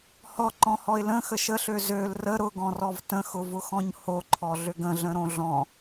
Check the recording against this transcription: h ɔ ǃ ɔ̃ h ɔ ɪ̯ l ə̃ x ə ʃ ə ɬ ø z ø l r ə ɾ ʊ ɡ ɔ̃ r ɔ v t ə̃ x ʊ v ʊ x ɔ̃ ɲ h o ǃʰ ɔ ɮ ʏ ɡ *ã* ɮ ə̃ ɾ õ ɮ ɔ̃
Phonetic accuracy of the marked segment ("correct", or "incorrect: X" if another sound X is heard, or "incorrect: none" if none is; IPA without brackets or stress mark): incorrect: ə̃